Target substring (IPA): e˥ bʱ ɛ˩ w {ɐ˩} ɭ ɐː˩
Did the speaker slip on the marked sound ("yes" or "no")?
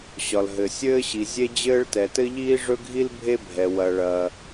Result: no